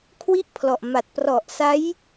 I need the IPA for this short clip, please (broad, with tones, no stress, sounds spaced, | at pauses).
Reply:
kʰ w i˥˩ ʔ pʰ l ɔ˨˩ ʔ m a˨˩ t̚ p r ɔ˨˩ ʔ s a˦˥ j